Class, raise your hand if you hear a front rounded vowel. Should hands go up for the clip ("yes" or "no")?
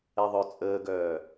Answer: yes